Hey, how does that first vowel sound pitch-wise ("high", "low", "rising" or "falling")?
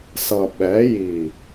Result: low